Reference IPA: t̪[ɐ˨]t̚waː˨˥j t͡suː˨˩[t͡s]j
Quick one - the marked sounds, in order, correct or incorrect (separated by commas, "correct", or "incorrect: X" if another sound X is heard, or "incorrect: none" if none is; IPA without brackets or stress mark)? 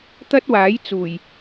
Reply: incorrect: ɐ˥, incorrect: none